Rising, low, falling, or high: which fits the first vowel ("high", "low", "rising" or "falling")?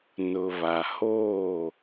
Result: low